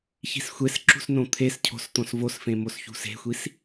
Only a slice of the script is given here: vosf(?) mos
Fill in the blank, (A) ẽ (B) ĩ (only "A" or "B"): A